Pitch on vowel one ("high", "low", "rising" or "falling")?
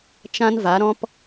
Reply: high